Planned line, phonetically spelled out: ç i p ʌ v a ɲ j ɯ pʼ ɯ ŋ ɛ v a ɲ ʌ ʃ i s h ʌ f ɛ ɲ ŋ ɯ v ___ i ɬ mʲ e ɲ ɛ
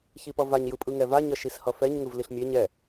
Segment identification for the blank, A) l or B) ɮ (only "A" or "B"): A